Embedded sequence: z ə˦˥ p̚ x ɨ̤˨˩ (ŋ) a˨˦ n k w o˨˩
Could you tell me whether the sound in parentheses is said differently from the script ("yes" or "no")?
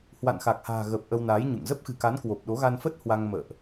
yes